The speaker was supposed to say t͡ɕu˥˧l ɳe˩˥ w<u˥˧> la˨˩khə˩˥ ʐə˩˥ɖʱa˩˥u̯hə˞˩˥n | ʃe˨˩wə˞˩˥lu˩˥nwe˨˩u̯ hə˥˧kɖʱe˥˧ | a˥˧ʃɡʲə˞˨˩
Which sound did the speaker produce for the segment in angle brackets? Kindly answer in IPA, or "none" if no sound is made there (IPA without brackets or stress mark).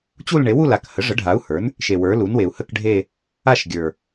u˥˧